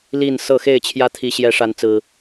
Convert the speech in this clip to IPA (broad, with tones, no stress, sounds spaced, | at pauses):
l i˥˨ n s ɤ˥˨ x e˥˨ ɪ̯ t͡ɕʰ j ä˦ t̪ʰ i˨˦ ɕ j ɛ˨˦ ʂ a˨˦ n t͡s ɹ̩˨˩